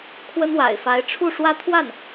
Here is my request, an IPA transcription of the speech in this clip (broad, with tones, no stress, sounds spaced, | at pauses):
kʰ w ə˥ n w a̰˨˩ ɪ̯ f a˧˥ ɪ̯ ʈ͡ʂʰ u˥˩ ʂ w ä˥ t̪ʰ w a˥˩ n